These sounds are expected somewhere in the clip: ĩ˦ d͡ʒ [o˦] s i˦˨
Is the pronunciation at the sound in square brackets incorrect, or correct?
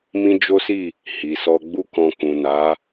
correct